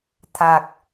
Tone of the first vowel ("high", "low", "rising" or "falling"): low